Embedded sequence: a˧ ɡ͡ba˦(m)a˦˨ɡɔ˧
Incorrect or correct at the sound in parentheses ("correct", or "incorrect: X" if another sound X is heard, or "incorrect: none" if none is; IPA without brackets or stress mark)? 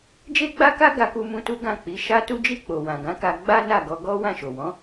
incorrect: n